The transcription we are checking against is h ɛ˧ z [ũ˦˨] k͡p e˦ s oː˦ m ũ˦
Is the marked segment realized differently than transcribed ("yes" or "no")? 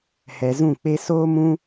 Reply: no